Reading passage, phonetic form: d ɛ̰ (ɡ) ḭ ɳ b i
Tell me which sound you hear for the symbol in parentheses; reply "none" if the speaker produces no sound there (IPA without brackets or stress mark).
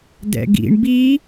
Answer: ɡ